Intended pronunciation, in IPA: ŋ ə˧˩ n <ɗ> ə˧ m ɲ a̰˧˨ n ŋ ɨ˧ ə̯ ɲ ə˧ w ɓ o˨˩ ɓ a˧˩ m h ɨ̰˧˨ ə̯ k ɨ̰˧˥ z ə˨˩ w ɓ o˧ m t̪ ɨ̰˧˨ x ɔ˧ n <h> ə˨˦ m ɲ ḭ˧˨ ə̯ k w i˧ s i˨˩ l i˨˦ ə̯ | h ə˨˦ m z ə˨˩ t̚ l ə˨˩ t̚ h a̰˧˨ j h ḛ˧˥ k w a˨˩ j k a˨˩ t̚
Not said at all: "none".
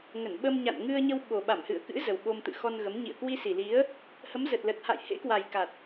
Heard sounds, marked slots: ɓ, ɣ

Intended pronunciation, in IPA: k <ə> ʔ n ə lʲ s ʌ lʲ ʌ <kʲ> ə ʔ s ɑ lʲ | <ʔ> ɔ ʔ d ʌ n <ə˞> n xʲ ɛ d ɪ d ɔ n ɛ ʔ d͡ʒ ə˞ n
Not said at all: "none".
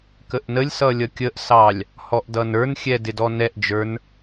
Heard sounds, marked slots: ə, kʲ, h, ə˞

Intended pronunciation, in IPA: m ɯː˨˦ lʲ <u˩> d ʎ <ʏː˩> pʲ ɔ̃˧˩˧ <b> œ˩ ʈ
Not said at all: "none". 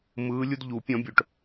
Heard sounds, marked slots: u˦, uː˩, bʲ

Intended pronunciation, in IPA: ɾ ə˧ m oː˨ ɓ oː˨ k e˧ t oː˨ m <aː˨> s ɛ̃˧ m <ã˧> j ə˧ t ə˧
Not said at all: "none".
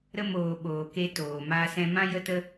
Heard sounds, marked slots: aː˧, ã˧

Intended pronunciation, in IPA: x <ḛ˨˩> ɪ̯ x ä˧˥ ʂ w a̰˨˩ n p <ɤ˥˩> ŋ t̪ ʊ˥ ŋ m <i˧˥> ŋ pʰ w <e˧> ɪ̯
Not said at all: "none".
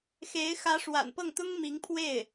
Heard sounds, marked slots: e˧˥, ɤ˥˩, i˧˥, e˥˩

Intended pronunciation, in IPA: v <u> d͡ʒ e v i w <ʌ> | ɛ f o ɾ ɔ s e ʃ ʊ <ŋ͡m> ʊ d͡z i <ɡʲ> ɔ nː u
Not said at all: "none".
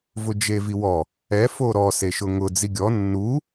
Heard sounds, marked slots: ʊ, ɔ, ŋ, ɡʲ

